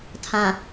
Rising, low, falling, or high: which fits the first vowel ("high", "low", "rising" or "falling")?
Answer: low